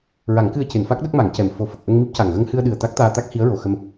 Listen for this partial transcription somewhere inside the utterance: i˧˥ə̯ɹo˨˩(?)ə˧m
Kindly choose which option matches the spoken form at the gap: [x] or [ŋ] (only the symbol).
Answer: x